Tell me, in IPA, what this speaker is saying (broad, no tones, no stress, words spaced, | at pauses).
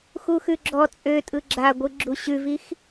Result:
xuxʉɡ͡ǁɔ t͡sʼøtʼɯ ɡ͡ǁaɡʷɯ ɡ͡ǁuɕʉvix